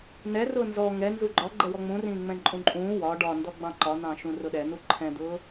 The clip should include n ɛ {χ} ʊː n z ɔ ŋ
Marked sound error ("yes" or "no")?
yes